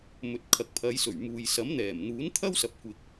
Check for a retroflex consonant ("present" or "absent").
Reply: absent